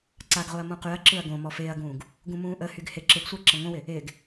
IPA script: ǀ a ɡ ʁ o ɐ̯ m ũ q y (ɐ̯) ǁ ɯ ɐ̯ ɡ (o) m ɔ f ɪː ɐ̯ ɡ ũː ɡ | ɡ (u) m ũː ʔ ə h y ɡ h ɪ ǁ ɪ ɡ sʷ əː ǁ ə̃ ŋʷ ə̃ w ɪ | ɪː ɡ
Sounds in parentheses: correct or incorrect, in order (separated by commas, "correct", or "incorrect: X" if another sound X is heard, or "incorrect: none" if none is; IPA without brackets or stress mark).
correct, incorrect: õ, incorrect: ũ